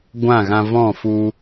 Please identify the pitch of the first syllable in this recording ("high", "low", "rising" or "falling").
falling